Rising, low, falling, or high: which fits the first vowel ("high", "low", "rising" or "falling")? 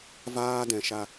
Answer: high